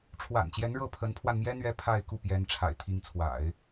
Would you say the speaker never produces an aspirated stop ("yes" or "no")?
no